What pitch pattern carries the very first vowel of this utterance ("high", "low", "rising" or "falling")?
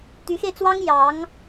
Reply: rising